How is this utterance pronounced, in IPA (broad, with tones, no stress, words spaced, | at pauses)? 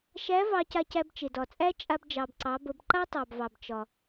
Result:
ʃæ˧˥ vɑ˧ca˧cæ˧b t͡ʃe˩dɒ˩t͡sʼæ˥ t͡ʃʼa˧b d͡ʒɑ˩bǀɑ˩˧bə˩˧b ǃa˥tˤɑ˩bvɑ˩b t͡ʃɒ˩